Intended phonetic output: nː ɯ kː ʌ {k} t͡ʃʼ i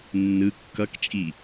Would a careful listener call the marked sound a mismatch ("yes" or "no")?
no